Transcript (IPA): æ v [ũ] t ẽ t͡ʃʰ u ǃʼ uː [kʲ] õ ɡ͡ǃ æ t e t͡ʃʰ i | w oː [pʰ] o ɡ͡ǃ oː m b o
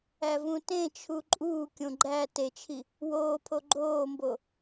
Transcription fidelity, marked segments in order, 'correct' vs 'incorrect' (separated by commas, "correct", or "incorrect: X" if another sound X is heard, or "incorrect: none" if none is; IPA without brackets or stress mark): correct, correct, correct